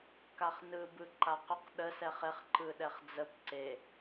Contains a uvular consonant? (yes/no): yes